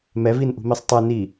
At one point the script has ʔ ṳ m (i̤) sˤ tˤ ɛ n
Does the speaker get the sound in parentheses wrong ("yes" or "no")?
yes